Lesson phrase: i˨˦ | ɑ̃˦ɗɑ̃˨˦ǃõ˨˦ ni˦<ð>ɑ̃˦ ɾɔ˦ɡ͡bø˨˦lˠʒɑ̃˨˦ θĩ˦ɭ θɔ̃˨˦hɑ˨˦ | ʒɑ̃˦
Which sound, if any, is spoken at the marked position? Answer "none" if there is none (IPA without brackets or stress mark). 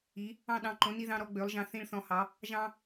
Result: ð